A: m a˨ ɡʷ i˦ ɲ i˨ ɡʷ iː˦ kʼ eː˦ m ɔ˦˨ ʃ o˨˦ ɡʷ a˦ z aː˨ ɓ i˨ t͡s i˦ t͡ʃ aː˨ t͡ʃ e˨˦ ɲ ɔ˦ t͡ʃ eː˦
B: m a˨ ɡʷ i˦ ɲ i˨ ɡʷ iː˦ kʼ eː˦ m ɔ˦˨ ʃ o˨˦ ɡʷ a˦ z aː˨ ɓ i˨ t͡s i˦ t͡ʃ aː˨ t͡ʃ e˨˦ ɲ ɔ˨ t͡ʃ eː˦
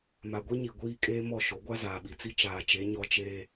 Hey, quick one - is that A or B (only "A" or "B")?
A